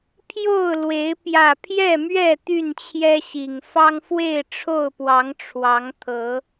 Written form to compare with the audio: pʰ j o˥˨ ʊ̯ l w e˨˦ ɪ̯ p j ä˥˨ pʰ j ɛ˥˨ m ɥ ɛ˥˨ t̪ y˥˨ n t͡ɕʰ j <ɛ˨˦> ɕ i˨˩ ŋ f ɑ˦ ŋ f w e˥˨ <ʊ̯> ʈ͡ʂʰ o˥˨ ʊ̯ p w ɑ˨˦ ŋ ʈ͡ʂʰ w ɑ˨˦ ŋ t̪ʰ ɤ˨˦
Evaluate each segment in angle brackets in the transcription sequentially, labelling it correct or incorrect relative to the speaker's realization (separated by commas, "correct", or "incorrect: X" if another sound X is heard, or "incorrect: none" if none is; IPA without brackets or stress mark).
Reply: incorrect: ɛ˦, incorrect: ɪ̯